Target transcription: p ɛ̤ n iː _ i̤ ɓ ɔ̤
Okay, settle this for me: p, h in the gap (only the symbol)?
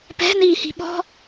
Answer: h